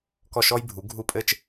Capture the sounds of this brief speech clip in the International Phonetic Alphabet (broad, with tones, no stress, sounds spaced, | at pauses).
k ɔ˧˩ ʃ ɔ˧ j bʱ u˩˧ ɡʱ u˧˩ pʼ ɘ˧ t͡ʃ